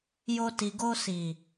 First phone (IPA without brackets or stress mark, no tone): j